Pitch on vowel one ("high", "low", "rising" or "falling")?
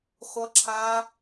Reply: high